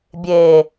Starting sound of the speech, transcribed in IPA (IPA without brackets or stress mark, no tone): bʲ